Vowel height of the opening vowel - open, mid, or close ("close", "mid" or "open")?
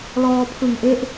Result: mid